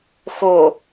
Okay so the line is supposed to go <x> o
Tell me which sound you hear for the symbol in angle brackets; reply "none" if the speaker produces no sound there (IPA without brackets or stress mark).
x